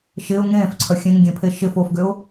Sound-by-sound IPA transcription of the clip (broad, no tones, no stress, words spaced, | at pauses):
ʃɪːʊ̯ ŋẽːfǀʰœ xʲẽŋɡʲẽpʰe ʃɪfoːfɡʏʊ̯